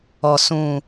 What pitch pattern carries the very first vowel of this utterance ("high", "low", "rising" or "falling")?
low